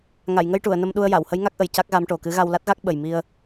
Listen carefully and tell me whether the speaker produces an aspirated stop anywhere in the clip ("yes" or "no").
no